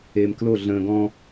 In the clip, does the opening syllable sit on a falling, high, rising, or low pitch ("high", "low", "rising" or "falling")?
low